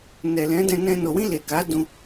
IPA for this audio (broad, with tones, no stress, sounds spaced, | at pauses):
n ɛ˨ l ɛ̃˨˦ d ɛ̃˧ n ɛ̃˧ n o˨ w ĩ˧ l e˨ k a˨˦ d ũ˧